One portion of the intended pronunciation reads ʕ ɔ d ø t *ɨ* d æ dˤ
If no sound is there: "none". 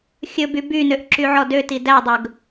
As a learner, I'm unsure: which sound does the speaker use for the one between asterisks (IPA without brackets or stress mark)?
i